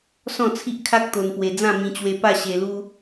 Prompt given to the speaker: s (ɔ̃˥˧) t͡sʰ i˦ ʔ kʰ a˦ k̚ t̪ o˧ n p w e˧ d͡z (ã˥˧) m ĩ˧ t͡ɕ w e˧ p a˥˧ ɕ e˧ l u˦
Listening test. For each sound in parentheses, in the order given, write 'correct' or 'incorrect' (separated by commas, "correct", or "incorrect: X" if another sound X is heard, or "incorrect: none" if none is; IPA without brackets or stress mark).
correct, correct